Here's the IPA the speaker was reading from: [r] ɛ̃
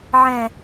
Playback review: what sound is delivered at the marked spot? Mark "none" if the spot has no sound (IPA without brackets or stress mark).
ʕ